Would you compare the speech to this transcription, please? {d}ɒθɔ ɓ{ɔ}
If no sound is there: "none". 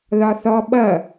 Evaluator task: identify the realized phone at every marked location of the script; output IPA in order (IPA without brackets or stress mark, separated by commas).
ð, ʌ